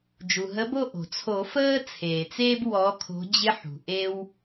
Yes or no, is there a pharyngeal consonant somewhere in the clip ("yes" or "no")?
yes